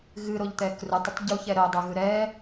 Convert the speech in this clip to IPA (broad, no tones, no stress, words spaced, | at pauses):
ɣɨɾoʎt̪ɛ krutˤətˤ ɟuçɛ ɾəo̯dˤʌɣɯ ɾɛ